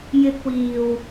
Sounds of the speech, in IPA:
j ɪ˧ k̚ w iː˨ w

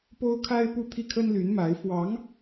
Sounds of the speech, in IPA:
p o˥ ʊ̯ kʰ a˥ ɪ̯ p u˥˧ t̪ʰ i˥˩ kʰ ə˥ n l y˧˥ n m a˧˥ ɪ̯ f w ɑ˧˥ ŋ

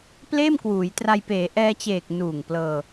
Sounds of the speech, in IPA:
p l eː˥˩ m k w uː˩˦ j t r a˧ j p eː˩˦ ʔ ɛː˧ t͡ɕ eː˨˩ k̚ n uː˨˩ ŋ p l ɤː˧

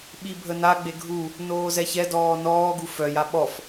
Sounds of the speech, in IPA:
ɓ i bʱ ə n a ɡ͡b e ɡʱ u | n oː z ɛ ç ɛ d ɔː n ɔː ɡ u f œ j a ɓ ɔ f

